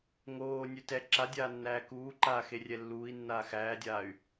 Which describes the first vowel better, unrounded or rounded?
rounded